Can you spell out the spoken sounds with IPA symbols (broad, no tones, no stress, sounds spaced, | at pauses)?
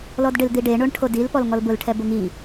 l ɔ d ɖ ɪ l d̪ i ɖ e ɳ o ɳ ʈʰ o d i l p ɔ l ŋ ɔ l b ʊ l ʈʰ ɛ b ʊ ŋ i